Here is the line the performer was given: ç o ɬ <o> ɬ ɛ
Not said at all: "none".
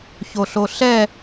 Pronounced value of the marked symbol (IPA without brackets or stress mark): o